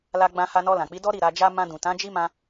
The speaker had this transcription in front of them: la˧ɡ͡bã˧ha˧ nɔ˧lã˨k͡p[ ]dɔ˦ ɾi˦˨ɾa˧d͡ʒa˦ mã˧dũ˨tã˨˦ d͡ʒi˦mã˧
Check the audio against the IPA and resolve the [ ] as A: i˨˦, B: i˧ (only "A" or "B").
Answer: A